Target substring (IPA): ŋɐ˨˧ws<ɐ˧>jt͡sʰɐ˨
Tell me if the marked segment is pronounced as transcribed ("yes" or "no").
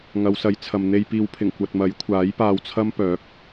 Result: no